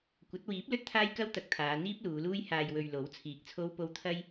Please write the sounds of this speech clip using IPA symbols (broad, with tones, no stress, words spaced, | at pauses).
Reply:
kʷɐ˨˥t̚ wiː˨˥p̚ lɵ˥t̚t̪ʰaː˥j kɐ˥wt̪ɐ˨˥k̚t̪ʰaː˨˧ n̪iː˥p̚luː˨˧luː˥j haː˧jwɵ˧ɥ lo˨˥w t͡sʰiː˧k̚t͡sʰo˥wpo˥w t̪ʰɐ˥j